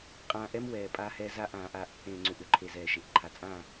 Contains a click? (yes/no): yes